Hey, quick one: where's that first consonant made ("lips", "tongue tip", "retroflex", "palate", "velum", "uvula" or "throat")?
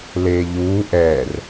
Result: tongue tip